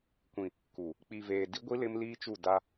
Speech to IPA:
kʷ ĩ˨ | k u˨ | k͡p i˨ v eː˨ d i˦ ɡʷ i˦ l ɪ˦ m l iː˦ t͡ʃ u˦˨ d a˦

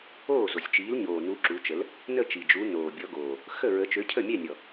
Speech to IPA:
oː˥˩ z o˨˩ sʲ t͡ʃ iː˨˥ l ɲ oː˨˩ n u˨˥ ǁ u˨˥ t͡ʃ ə˨˥ l | n ə˥˩ t͡ʃ i˨˩ d͡ʒ u˨˥ n oː˨˩ bʲ ɔ˨˥ ɡ oː˨˩ | x ə˥˩ ɹ ə˨˥ t͡ʃ ø˨˥ cʰ ə˥˩ mʲ ɛ˥˩ nʲ ɔ˨˩

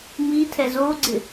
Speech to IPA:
m i tʰ ɛ z o ɡ͡ǀ ɪ

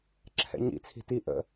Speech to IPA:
ǁʰ ɛ̰ ɲ ḭ t͡sʰ i̤ t i ʔ ə̰

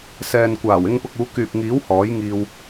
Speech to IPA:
s ɛː˨ n kʷ aː˨˩ w ɪ˧ ŋ p ʊ˨ k̚ uː˨˧ k yː˨ p̚ ŋ iː˨˥ w h ɔː˨˥ j ŋ iː˧ w

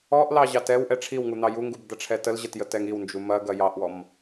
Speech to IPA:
ɔ ʔ l ɑ ʑ ɑ t ɛ w ʔ ɛ ʈ͡ʂʰ i w ŋ u n̪ ɑ j u ŋ ɡ u b d̪ ɐ ʈ͡ʂʰ ɛ t ə l ʑ ɛ t j ə t ɛ ŋ i w n d͡ʒ u m ɐ ɡ ɐ j ɑ ʔ w ɔ m

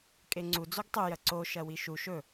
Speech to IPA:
kʼ e ŋ͡ǀ u d͡z o ɡ tˤ u j ɐ ǀ o ʃ ɐ w i ʃ u ʃ ɵ

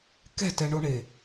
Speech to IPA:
k ɛ̤ t ɛ ɳ o ɳ e

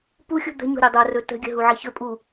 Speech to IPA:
p u xʲ ṳ d̪ ə̤ ɲ o̤ ɾʲ o dˤ o r ɵ t ə̤ ɡʲ ə̤ ɦ u ʕ ə ç ɵ pʼ u

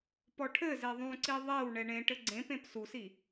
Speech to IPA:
p ɔ ʈʰ ɘ z ɛ ðˤ ũ ǀ i ðˤ ɛ w ɳ ɛ ɳ ẽ ʈ ɘ ɡ͡ǀ ẽ p ẽ p s u s i

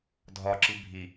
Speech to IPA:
dʱ ɒ ǁ i bʱ i

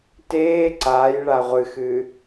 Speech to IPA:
t eː ǀ aː j ɭ a ʁʷ ɨ x ɨː

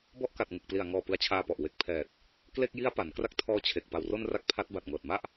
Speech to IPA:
b ɔ˦˥ ʔ k a˨˩ t̚ ŋ ɯ˨˩ k̚ p l i˨˩ a̯ ŋ ɔː˨˩ p ɯ˧ a̯ t͡ɕʰ aː˧ p ɔ˨˩ ʔ w e˨˩ k̚ pʰ ɛː˨˩ t̚ | k l e˥˩ k̚ j i˦˥ a̯ p a˩˦ n k r a˥˩ k̚ tʰ ɔː˧ t͡ɕʰ e˨˩ k̚ p a˨˩ w r o˧ n r a˥˩ k̚ pʰ a˦˥ t̚ b a˨˩ t̚ ŋ ɤː˨˩ t̚ m a˥˩ ʔ

